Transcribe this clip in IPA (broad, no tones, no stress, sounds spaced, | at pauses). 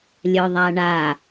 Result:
lʲ œ ðˤ a ɳ a